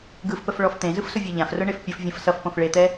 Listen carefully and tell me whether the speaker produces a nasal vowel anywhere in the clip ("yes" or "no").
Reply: yes